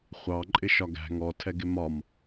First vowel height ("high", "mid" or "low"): low